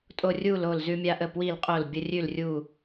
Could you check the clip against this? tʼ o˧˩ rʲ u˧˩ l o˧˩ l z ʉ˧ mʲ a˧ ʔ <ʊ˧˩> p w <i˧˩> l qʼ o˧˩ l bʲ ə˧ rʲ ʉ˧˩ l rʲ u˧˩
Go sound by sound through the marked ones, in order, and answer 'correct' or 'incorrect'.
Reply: incorrect: ə˧˩, correct

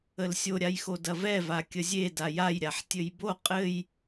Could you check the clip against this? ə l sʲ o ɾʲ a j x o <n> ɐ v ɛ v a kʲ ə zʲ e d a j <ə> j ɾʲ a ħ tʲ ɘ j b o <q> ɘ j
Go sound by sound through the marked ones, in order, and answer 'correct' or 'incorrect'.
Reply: incorrect: d, incorrect: a, incorrect: qʼ

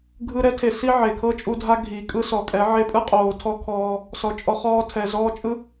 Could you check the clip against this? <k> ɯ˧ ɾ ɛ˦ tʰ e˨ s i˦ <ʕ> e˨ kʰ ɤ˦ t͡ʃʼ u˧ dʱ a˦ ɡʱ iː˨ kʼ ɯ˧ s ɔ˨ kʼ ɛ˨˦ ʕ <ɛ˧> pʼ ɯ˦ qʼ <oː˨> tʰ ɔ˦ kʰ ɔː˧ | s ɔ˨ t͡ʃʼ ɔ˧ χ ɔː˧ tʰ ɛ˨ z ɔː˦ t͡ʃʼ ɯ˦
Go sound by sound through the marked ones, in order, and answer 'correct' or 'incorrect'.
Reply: incorrect: ɡʱ, correct, incorrect: e˧, correct

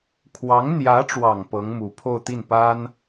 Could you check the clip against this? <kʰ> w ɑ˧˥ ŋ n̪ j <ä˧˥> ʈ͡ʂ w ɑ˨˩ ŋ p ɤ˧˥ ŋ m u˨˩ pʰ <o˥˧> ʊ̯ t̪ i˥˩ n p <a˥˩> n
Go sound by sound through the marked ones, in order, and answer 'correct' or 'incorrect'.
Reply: correct, correct, correct, incorrect: a˥

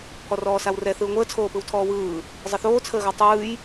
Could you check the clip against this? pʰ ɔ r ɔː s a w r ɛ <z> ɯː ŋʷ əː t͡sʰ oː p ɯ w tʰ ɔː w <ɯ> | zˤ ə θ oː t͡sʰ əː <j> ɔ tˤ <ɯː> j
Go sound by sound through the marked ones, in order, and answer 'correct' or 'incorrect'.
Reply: incorrect: θ, incorrect: ɯː, incorrect: ɣ, correct

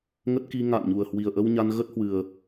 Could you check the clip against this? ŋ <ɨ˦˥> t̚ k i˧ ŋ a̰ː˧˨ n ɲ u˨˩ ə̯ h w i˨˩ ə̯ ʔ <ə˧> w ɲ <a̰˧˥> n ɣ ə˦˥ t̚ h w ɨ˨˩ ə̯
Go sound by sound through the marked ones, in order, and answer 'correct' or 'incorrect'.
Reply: incorrect: ə˦˥, correct, incorrect: a˧

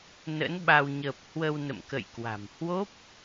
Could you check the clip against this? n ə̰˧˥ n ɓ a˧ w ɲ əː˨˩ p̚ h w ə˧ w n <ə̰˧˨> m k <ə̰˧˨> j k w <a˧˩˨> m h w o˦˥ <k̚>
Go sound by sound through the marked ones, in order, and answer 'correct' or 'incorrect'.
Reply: correct, correct, incorrect: a̤˨˩, incorrect: p̚

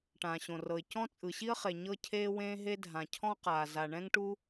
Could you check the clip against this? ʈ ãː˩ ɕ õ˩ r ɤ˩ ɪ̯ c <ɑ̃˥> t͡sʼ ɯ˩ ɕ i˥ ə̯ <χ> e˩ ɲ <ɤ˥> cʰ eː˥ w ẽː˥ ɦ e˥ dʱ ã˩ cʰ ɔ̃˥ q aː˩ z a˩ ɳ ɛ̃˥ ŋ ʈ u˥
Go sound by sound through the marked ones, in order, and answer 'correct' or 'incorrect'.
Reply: incorrect: ɔ̃˥, correct, correct

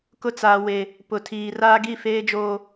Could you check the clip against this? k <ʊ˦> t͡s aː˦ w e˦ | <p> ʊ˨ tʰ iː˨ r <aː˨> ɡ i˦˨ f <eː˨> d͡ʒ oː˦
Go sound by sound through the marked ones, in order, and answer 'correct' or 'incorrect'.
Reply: correct, correct, incorrect: aː˦, incorrect: eː˦

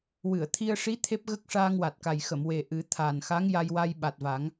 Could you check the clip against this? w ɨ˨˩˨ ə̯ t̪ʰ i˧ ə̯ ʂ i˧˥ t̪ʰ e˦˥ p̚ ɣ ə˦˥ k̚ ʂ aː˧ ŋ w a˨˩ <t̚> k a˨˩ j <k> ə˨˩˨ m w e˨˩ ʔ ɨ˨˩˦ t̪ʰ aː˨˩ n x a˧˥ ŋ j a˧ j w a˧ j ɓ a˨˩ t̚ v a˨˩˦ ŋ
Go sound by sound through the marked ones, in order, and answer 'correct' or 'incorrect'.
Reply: correct, incorrect: x

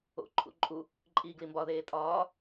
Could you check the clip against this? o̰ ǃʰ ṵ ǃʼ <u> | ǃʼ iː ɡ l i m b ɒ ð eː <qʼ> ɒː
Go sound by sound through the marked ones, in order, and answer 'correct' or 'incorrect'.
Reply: correct, incorrect: tʼ

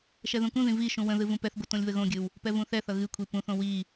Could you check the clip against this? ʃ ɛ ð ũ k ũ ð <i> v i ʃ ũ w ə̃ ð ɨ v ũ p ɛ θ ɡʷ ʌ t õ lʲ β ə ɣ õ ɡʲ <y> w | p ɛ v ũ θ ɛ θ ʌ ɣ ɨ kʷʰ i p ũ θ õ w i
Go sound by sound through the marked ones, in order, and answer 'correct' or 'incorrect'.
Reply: incorrect: ĩ, incorrect: ɨ

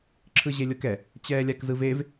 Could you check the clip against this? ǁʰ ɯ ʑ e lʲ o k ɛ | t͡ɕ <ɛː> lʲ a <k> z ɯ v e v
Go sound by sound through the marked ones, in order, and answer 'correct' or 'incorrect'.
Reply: correct, correct

